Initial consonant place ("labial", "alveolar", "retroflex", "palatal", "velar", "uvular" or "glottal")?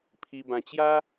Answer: labial